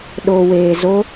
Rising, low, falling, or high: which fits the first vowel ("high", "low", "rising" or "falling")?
low